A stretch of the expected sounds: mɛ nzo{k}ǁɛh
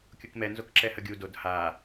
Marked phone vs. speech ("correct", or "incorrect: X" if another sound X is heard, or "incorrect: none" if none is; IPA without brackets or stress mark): correct